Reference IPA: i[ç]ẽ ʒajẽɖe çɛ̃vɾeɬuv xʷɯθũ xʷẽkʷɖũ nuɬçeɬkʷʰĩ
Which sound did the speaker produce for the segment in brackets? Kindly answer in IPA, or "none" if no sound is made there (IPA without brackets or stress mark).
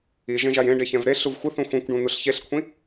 ʒ